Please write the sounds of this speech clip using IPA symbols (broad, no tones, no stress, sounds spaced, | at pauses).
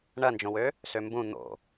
ɳ ɐ n d͡ʒ õ w ø | s ø m b ũ n̪ o̰